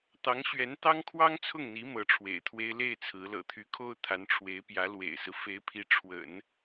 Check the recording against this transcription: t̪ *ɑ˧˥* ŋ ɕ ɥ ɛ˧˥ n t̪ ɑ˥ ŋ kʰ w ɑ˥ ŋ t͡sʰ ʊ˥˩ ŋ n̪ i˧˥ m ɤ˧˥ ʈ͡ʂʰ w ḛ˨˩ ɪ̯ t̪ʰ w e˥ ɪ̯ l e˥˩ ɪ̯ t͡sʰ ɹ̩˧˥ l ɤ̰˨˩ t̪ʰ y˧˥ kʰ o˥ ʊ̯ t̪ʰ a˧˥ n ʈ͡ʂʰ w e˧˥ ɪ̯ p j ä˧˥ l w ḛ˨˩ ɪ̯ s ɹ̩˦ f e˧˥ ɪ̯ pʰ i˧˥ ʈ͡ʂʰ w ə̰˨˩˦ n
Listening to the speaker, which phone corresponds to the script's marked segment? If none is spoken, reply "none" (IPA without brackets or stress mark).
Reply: ɑ˧˥